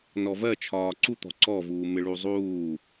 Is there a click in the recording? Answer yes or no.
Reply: yes